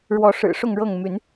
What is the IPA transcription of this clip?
ɻ w ɔ˨˦ ʂ ɻ̩˨˩ ʂ ʊ˥˨ ŋ ɻ ɤ˥˨ ŋ m y˨˦ n

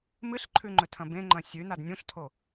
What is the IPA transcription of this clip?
m ɨ ɬ ǃʰ ʉ ŋ͡ǃ ɵ tʰ ɐ̃ b ẽ ŋ͡ǃ ɐ̃ sʲ ʉ n a d nʲ ũ ɬ tʰ o

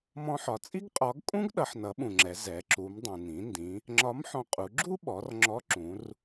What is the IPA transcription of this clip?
m ɔ̃˧ ħ ɒ˩ t͡sʼ i˥ ɡ qʼ ɒ˧˥ ɡ kʼ ũ˥ ɡ ɗ ʌ˩˧ ħ n ʌ˩˧ ɓ ũ˩ ŋ͡ǁ ɛ˩˧ z ɛ˩˧ ǁ u˩˧ m dˤ ũ˩ n ĩ˩˧ n d ĩ˩˧ | ŋ͡ǁ ɒ˧˥ m ħ ɔ̃˧ qʼ u˩˧ ɡ͡ǁ u˥ ɓ ɔ˩˧ r ŋ͡ǁ ɔ˧˥ ǁ ũ˩˧ r

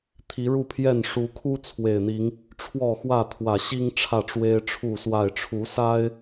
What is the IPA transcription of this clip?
t̪ʰ i˨˦ ɻ u˥˨ pʰ j ɛ˥˨ n ʂ u˨˦ kʰ u˦ t͡sʰ w e˨˩ ɪ̯ n̪ i˨˦ ŋ | ʈ͡ʂʰ w ɔ˥˨ x w ä˥˨ t̪ʰ w ä˨˩ ɕ i˦ ŋ ʈ͡ʂʰ ä˥˨ ʈ͡ʂ w e˦ ɪ̯ ʈ͡ʂʰ u˥˨ s w a˥˨ ɪ̯ ʈ͡ʂʰ u˨˦ s a˦ ɪ̯

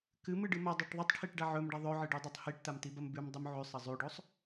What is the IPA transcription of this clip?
k ɨ m ɨ ɖ ɨ m ɐ dˤ u ʈ ðˤ i tˤ ʈʰ i ʈ ɖ a ʕ ɵ m ɖ a ðˤ ɵ ʕ ɨ ɖ ʉ dˤ o tˤ h i ʈ t a m t i b ɐ m b ʉ m dˤ u m ʕ ʉ sˤ ɐ zˤ ʉ ɖ o sˤ

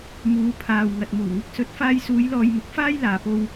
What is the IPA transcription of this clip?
m uː˨˧ pʰ aː˨ w ŋ ɐ˨ t̚ m uː˨˩ ŋ ɪ˧ k̚ s ɵ˨˥ t̚ f aː˧ j s uː˨˧ j l ɔː˧ j m ʊ˨˥ k̚ f aː˥ j l aː˨ p o˧ w

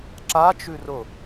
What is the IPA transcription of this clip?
ǁ a t͡ʃ ʉ r ʊ

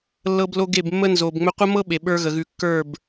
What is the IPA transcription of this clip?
lː ɤ˦ b l o˦ ɡ e˦˨ b mː ə˦ n z o˨ b ŋ͡m ɵ˦ qʷ ə˦ m ɤ˦ ɓ e˨ ɓ ə˞˧ ɣ ə˨ ɣ ʉ˨˦ kː ə˞˦˨ b

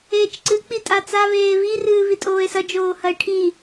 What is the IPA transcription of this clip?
eː t͡ʃ ǀ ɨ k͡p i tʼ a t͡s a β eː β i r ɨː β i tʼ oː e̯ s ɐ d͡ʒ oː h ɐ e̯ ʈʰ i

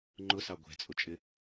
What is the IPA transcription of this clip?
ŋ͡ǃ ʊ s ɑ ɡʷ ɛ̤ t͡sʼ ʊ t͡ʃʼ ɪ

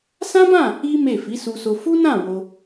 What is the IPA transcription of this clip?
s ã˦ b ã˦˨ | i˦ m e˦˨ f i˨˦ s u˧ s o˧ f u˦ n ã˦˨ w o˧

